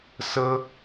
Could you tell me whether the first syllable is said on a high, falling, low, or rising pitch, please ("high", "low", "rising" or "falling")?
high